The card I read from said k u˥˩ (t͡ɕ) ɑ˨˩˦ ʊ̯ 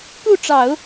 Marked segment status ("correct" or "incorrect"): incorrect